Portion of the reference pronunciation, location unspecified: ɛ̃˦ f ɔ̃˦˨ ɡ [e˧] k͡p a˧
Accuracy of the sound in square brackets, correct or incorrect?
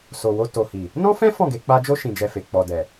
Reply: correct